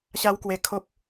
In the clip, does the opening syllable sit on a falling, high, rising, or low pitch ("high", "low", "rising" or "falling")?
high